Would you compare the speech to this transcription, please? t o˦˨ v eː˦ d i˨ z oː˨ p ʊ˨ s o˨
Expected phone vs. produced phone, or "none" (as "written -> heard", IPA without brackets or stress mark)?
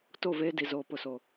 none